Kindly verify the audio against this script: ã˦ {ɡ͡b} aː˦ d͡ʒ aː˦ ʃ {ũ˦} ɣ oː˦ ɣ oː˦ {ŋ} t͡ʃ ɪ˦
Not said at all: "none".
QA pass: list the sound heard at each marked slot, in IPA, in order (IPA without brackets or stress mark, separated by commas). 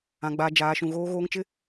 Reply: ɡ͡b, ũ˦, ŋ